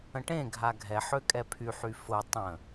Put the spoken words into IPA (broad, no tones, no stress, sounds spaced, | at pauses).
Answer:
ə̃ ʈ ẽ ɡʱ a ɡʱ ɛ ħ ø kʼ ɛ pʰ y ħ y f ʊ tˤ ə̃